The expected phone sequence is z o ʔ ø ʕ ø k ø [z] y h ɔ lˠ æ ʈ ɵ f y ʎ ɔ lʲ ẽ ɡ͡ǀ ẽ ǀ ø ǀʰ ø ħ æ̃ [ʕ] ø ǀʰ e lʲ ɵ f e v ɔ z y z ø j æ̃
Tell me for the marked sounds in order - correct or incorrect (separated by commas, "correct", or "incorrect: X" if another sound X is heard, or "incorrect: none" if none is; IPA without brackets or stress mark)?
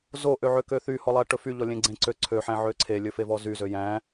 incorrect: θ, correct